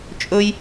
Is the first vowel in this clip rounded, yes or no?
yes